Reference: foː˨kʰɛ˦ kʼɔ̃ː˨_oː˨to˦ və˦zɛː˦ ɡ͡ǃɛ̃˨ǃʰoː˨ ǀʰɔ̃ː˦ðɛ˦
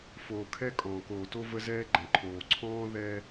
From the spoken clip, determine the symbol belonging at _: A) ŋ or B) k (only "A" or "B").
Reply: B